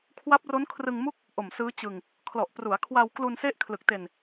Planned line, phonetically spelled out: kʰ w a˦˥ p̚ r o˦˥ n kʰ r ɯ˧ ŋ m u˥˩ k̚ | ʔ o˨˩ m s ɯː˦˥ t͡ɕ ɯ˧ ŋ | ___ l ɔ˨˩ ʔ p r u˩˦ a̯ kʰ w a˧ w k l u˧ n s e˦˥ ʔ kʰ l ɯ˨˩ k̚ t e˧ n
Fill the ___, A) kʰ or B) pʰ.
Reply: A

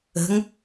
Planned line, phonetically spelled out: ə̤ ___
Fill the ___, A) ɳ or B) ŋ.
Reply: B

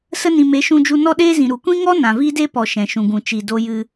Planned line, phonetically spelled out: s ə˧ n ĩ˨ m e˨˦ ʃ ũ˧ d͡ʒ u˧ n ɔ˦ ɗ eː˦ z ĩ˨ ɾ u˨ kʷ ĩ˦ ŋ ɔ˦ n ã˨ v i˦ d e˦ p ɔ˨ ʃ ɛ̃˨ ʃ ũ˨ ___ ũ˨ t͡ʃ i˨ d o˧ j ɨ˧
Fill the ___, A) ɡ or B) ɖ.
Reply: A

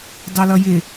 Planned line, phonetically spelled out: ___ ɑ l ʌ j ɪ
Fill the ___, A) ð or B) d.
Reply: B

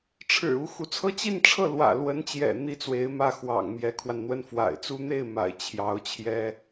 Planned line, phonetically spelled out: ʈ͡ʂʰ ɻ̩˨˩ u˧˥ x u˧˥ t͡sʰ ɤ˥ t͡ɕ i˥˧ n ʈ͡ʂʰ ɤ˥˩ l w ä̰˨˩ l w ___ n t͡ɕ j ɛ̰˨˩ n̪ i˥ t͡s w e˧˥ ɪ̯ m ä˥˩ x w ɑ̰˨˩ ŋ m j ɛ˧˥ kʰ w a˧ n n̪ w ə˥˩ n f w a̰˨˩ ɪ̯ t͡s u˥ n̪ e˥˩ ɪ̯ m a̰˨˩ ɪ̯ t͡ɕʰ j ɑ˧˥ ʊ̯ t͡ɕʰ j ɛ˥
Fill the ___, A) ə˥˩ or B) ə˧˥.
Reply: B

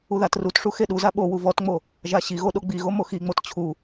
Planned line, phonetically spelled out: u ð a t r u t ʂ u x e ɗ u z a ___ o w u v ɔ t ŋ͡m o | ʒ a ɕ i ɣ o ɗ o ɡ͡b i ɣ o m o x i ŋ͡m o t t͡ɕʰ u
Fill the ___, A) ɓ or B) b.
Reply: A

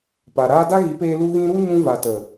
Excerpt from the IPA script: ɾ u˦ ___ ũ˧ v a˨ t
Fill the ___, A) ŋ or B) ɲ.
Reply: B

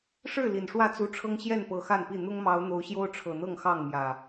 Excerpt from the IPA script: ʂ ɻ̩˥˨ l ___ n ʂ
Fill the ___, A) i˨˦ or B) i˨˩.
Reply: B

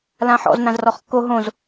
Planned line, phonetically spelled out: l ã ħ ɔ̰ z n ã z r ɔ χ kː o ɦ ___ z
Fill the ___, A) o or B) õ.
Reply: B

